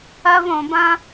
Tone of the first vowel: high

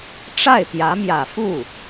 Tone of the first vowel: falling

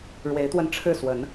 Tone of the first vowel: rising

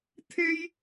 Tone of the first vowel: high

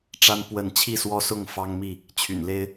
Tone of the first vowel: high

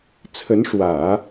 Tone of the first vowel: rising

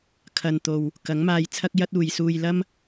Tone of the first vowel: low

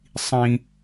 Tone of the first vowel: high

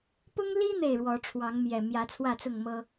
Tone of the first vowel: high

